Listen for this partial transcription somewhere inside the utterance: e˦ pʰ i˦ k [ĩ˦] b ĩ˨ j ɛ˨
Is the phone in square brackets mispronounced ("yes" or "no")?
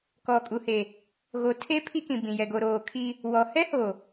yes